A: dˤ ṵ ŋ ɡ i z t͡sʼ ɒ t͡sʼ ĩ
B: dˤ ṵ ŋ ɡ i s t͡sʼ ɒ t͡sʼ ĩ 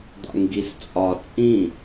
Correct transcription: B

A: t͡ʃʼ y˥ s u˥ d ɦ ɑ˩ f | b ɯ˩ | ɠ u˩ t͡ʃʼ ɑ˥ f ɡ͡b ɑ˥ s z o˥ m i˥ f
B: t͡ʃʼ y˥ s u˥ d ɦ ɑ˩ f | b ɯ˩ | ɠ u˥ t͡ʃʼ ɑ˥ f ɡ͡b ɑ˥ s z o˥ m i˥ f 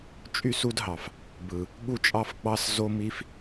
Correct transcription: B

